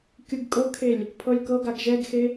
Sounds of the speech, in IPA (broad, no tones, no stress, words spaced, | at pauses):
kʲɯɡkʼɤkʰelʲ | pʰɤlʲkɤɡaɡ ʒɛɡxe